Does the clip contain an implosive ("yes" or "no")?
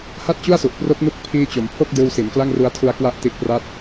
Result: no